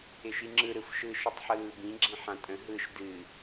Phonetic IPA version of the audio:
ɪ ʃ i ŋ͡ǁ ɯ ɾ ɯ f ʃ ɯ ʃ ɨ tˤ ħ ɯː b ĩ ɡ͡ǁ ĩ ħ ã tʼ ə̃ ɦ ɯ ʃ d ɨ

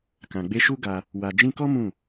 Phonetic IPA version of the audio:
k ã˨ ɡ͡b e˧ ʃ u˦ ɡ a˧ | w a˨ d͡ʒ ĩ˧ k ɔ˦ m ũ˦˨

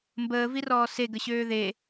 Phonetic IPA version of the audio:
m b əː v i r ɔː s e ɡ ə ɕ øː ð e

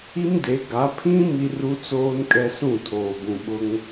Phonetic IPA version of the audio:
i˦ m d e˨˦ ɡ a˨˦ pʰ ĩ˦ m i˦ r u˦ t͡s oː˦ n kʼ ɛ˦ s ũ˦˨ tʰ oː˨ b ũ˨ ɓ ʊ˦ ŋ

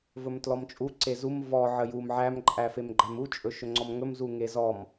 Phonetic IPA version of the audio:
v ɵ m t l ɔ m t͡ʃʼ u ǀ e z u m v ɔ ʕ ə j u m ʕ æ m ǃʼ æ f e m ɡ͡ǃ æ m u t͡ʃʼ ɵ ʃ ɵ ŋ͡ǀ ɔ m ŋ ɵ m z u ŋ e z ɔ m

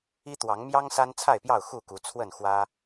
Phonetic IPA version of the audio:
i˦ t̪ w ɑ˨˦ ŋ m j ɑ˦ ŋ s a˦ n t͡sʰ a˥˨ ɪ̯ p j ɑ˥˨ ʊ̯ x u˥˨ k u˨˦ t͡sʰ w ə˥˨ n x w ä˦

